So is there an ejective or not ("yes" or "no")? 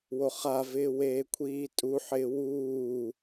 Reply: yes